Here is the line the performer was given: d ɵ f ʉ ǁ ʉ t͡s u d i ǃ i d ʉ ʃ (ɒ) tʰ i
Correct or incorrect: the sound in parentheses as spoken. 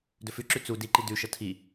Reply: incorrect: ʌ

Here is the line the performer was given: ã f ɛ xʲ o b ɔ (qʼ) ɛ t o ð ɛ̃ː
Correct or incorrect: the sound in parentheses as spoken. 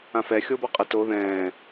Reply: correct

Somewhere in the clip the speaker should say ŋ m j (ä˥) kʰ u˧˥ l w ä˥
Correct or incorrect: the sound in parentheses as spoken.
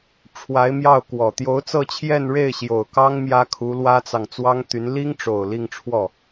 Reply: correct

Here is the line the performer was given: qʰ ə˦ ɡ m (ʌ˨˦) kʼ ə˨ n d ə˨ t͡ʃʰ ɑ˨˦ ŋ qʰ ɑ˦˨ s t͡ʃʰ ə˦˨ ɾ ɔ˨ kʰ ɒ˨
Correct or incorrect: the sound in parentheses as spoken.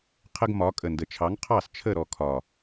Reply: incorrect: ɒ˨˦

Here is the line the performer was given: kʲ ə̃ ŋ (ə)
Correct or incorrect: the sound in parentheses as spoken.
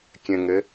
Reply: correct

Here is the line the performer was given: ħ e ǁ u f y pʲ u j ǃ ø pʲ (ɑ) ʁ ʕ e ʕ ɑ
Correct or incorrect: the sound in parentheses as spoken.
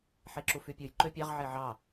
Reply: correct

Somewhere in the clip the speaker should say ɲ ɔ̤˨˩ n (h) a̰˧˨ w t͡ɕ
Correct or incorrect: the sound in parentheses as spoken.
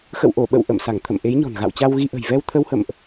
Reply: incorrect: ɣ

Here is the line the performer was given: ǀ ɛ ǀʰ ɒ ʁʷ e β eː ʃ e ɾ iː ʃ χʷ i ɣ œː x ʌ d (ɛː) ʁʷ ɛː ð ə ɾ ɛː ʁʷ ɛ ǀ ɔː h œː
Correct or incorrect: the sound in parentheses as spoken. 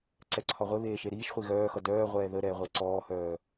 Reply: incorrect: œː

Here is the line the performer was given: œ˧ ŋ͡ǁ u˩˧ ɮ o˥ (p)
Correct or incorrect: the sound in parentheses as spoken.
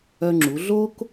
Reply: incorrect: k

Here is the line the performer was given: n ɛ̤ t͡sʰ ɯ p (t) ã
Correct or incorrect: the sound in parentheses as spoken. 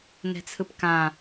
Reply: incorrect: k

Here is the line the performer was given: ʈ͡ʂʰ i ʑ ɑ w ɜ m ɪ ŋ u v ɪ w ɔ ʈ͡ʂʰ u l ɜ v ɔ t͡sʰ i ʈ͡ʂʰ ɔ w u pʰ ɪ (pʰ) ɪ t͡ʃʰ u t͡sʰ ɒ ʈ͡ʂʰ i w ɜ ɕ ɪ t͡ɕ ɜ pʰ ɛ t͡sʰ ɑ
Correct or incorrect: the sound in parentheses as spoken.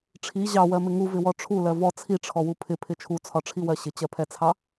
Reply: correct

